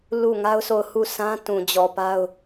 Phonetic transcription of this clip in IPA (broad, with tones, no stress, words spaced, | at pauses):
lu˦˨ŋa˦ʊ̯so˦˨ʊ̯ hu˦˨sã˦ tũ˨d͡ʑɔ˨pa˦ʊ̯